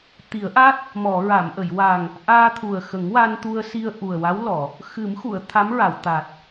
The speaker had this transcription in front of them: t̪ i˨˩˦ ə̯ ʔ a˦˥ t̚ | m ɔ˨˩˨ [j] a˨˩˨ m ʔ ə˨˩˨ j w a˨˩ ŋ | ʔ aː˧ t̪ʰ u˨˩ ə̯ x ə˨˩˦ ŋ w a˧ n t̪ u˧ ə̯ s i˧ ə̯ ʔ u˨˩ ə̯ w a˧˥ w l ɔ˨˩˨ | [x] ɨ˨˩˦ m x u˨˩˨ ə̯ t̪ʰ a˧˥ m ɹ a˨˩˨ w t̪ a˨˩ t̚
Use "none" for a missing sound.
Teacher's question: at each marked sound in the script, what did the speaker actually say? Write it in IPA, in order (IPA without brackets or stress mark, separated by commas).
ɹ, x